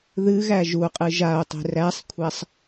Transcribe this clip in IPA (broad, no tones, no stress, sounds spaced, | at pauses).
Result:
ð ɨ ɣ æ ʒ u qʼ ɨ ʒ a o̯ tˤ e̤ r æ sˤ kʷʰ æ sˤ